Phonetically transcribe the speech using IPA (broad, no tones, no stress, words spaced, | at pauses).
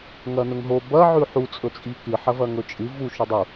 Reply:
ŋɐnɵŋɦo bɐ ʕʉħu t͡sʼɵt͡sʼikɨ ħɐvɐŋɵt͡ʃʼɨ vu ʃʉdˤu